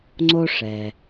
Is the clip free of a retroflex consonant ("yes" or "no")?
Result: no